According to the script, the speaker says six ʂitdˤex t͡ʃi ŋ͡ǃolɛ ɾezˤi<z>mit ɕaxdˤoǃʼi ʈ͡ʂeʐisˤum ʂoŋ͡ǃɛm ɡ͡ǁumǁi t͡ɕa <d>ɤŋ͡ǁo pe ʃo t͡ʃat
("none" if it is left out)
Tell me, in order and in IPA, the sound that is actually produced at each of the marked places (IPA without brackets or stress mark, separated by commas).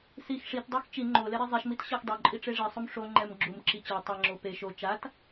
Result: ʃ, tˤ